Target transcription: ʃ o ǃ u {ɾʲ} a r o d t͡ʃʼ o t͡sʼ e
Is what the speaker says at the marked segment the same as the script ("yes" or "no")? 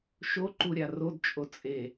yes